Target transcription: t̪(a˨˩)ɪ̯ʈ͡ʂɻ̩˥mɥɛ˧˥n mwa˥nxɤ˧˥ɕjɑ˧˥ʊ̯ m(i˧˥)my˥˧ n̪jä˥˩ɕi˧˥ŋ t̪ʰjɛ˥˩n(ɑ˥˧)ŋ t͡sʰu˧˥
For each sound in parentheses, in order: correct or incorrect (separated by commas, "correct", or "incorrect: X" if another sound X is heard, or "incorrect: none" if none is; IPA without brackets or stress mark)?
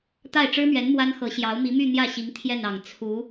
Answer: incorrect: a˥˩, correct, incorrect: ɑ˨˩